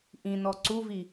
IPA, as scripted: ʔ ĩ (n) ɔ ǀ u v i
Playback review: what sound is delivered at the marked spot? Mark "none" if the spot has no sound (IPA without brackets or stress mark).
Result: n